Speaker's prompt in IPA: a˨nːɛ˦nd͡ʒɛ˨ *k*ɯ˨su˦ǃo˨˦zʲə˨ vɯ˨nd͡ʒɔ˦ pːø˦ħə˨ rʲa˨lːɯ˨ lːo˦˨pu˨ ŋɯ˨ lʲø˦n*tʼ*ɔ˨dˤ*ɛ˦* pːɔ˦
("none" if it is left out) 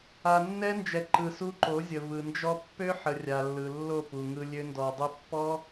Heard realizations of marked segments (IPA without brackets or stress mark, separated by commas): ǃ, d, ø˦